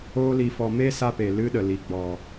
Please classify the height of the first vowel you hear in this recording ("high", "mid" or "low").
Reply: mid